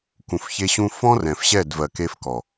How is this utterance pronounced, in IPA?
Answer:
k ũ˨ f ç e˦ ɕ ũ˦ f ɔ̃˦ r ɛ̃˨ f ɕ ɛ˦˨ d v ɜ˨ k e˦ f k ɔ˨

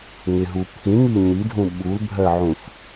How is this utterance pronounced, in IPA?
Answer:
ŋ ɪ ɦ u pʰ ĩ ŋ i ɲ i dʱ ũ ɓ u l bʱ ɜ ʕ ũ ç

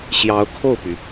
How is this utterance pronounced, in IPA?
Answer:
ɕ j ɑ˧˥ ʊ̯ kʰ o˥˩ ʊ̯ p y˩

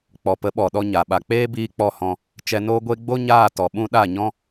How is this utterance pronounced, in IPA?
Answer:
k͡p ɔ˨ p ə˨˦ ɓ ɔ˨ ɗ ɔ˧ ɲ a˨ ɓ a˨ k͡p eː˦ b iː˧ k͡p ɔ˦˨ h ɔ̃˧ | t͡ʃ ɛ˧ n oː˦ ɡʷ e˦ ɡ͡b o˦ ɲ aː˦˨ t ɔ˨ ɓ ũ˦ ɗ a˦˨ ɲ ɔ̃˦

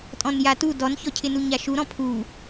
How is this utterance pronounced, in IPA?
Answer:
tʼ ɔ̃ n j a t u d ɔ n ç ɔ cʰ ɪ n u ɲ a ʃ u ɾ ɔ̃ pʰ u

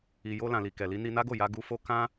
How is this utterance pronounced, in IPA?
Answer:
i˨ j o˧ l ã˨ l i˨ k ɛ˨ l i˧ n i˧ n a˦ ɡ o˦˨ j a˧ ɡ u˧ f o˦ k ã˦

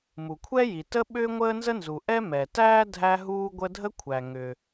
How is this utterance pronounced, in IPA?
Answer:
m u˩ kʷʰ ɛ˥ j i˩ t ə˥ ɓ ʏː˥ ŋʷ əː˥ n z ə˥ n z u˩ ʔ ɛ˥ m ɛ˩ t æː˥ dʱ æ˥ ɦ uː˥ ɡʷ ə˥ dʱ ə˥ kʷʰ æ˩ ŋ ʏ˩

